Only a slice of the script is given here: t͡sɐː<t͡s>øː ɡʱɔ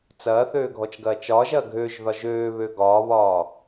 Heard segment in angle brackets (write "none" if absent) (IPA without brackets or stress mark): θ